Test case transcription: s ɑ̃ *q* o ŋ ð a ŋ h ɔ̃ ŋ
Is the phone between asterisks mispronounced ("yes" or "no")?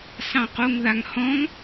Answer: no